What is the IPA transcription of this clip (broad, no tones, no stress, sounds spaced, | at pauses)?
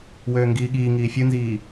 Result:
w øː ŋ ɡ iː ɠ iː ŋ iː fʲ ɯ n z iː